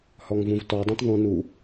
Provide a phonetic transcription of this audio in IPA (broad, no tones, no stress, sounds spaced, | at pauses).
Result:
h ɔ ŋ v ũ v t ɔ dˤ ũ t ðˤ ũ n u